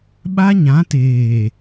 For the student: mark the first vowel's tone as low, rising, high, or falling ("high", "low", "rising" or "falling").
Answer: high